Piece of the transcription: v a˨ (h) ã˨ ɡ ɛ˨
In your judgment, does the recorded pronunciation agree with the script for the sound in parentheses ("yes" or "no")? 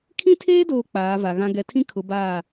no